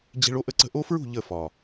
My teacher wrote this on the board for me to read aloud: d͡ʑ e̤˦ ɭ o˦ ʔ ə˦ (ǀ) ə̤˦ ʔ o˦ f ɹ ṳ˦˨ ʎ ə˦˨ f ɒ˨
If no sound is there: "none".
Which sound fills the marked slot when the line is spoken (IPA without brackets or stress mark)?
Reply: ǀ